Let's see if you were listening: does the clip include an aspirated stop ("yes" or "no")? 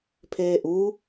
yes